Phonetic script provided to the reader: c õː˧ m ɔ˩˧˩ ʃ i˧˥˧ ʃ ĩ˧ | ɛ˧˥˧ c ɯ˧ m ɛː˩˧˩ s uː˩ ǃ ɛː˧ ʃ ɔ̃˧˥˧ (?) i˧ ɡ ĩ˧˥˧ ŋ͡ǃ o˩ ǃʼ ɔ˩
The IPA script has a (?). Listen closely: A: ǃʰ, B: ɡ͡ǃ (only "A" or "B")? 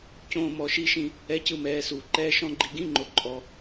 B